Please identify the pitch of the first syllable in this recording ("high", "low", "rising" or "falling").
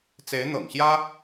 rising